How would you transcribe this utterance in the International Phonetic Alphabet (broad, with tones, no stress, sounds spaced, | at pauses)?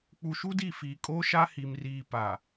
k͡p u˨ ʃ u˦ d i˦˨ f iː˨ kʼ o˦ ʃ a˦ h i˨ m r iː˨ p a˨